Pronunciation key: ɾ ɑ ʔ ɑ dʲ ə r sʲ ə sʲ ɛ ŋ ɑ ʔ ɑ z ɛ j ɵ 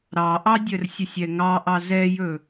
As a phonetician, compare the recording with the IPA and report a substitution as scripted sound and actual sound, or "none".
none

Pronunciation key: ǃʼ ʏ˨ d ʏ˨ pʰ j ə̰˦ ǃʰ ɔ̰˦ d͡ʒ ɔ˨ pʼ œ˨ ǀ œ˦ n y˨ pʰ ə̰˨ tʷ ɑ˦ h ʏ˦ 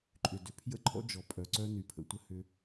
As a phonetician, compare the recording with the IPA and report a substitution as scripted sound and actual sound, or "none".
ɑ˦ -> ə˦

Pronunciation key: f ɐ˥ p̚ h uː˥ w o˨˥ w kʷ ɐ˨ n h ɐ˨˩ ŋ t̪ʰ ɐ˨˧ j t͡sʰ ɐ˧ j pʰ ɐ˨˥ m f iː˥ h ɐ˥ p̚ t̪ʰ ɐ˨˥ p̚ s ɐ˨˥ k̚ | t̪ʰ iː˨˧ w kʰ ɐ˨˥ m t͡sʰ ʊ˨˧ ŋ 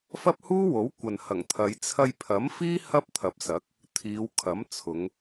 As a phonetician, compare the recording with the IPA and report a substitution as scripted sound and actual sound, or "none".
none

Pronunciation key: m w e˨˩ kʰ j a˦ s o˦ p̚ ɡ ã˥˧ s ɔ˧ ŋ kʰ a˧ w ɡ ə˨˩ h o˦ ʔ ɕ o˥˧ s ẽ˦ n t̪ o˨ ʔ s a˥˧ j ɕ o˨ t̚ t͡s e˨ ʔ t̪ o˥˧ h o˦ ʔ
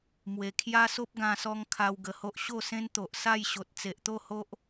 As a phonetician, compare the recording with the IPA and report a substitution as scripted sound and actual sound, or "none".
ã˥˧ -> ã˧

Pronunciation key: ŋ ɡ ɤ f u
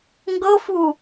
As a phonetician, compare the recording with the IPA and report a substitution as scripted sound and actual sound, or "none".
none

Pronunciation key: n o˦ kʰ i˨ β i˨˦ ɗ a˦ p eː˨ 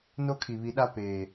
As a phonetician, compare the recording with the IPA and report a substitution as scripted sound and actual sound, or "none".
none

